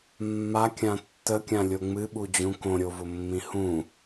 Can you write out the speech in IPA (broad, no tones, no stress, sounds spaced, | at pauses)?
mː a kʲ ã tː ə kʲ ã lʲ o ŋ͡m ɨ ɓ u d͡ʑ ũ k õ ɾʲ o v ʊ mː ĩ h ũ